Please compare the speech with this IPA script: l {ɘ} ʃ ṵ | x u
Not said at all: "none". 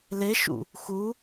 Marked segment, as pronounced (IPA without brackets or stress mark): e